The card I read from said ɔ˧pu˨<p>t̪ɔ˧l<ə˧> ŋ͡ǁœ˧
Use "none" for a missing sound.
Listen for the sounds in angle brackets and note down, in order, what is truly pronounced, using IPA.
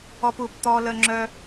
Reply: p, ə˧

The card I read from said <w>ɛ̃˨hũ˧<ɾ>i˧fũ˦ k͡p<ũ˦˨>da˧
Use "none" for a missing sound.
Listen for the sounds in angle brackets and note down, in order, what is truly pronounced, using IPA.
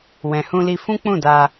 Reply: w, l, ũ˦˨

